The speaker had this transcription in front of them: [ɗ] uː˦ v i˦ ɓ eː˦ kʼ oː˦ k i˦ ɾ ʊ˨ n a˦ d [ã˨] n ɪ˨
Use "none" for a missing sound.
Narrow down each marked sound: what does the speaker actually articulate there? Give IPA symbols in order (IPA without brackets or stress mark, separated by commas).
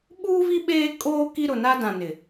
ɓ, ã˨